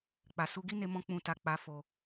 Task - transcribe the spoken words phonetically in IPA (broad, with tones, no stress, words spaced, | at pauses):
k͡pa˨su˧ɡi˦ne˧ mɔ̃˦k͡pũ˧ta˧ k͡pa˧fo˧